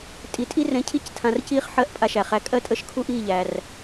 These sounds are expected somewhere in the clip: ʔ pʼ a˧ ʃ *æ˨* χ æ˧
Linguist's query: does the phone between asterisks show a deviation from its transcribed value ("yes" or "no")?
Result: no